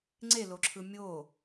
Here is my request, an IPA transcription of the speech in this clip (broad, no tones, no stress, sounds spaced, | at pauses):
ŋ͡ǀ e l o ǁʰ ɯ mʲ o